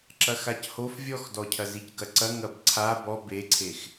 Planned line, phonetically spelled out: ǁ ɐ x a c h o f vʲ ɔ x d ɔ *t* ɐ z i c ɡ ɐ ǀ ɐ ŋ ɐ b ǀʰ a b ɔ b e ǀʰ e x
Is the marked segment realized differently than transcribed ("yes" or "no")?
yes